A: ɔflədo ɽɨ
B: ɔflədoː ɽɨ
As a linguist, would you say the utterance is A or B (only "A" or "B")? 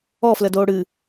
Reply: B